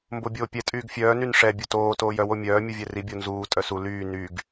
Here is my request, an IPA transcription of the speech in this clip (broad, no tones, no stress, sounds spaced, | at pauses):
m b o bʲ oː pʲ ɛ tʼ yː ɡ fʲ œː n y n ʂ ɛ bʲ o t oː t oː j œ w o mʲ œː mʲ u vʲ ɛ r i bʲ o n z uː tʼ œ s u l yː n y ɡ